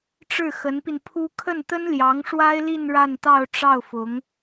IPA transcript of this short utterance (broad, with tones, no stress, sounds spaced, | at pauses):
ʈ͡ʂ ɻ̩˥˩ x ə˧˥ n p i˧ n pʰ u˥ kʰ ə˥˩ n t̪ ə˥ n l j ɑ˧˥ ŋ ʂ w a˥ ɪ̯ l i˥˧ n ɻ a˥˧ n t̪ ɑ˥˧ ʊ̯ ʈ͡ʂ ɑ˥˩ ʊ̯ f ʊ˧˥ ŋ